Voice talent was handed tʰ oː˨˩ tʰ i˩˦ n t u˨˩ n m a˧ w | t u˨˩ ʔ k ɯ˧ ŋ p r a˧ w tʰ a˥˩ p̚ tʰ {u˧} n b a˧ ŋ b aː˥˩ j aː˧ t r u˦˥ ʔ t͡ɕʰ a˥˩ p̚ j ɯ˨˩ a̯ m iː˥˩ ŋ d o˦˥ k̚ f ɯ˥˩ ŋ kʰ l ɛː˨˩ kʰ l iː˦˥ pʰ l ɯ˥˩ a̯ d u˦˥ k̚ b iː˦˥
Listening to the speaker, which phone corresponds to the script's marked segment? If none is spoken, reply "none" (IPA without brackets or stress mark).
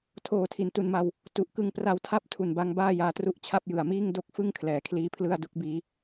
u˨˩